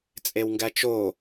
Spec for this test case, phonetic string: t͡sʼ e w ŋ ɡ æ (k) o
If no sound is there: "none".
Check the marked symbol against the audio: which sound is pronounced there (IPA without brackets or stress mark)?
t͡ʃ